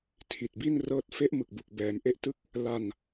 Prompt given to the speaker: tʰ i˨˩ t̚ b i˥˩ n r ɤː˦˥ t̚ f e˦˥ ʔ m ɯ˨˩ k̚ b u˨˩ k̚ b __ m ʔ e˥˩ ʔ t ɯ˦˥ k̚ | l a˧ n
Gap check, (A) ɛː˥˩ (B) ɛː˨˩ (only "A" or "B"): B